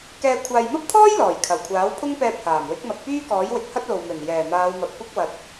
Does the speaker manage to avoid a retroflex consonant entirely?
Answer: yes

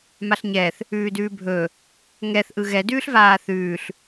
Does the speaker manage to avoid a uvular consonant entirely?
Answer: yes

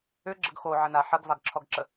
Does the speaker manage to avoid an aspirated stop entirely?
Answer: no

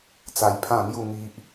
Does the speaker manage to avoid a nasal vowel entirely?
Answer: no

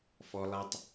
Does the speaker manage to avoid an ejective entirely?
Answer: yes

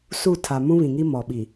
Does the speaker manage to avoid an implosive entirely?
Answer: no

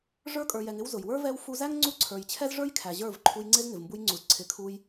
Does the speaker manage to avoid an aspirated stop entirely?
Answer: no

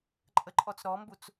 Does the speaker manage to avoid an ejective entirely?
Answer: no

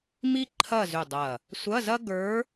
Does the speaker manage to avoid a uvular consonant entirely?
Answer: yes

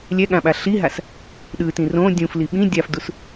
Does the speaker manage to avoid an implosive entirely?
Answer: no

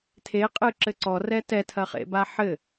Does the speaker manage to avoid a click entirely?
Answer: no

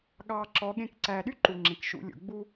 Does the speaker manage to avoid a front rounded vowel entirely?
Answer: no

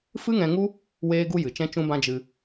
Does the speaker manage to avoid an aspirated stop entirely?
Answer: yes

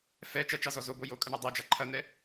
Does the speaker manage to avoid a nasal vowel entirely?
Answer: yes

